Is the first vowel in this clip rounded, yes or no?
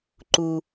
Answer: yes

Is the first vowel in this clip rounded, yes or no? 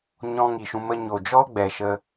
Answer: yes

